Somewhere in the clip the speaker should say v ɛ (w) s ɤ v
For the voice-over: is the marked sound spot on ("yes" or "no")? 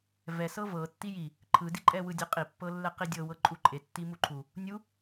no